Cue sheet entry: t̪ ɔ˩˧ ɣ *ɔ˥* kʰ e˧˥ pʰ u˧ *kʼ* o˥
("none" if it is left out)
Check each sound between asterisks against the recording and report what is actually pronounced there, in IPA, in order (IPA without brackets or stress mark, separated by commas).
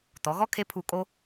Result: ɔ˥, kʼ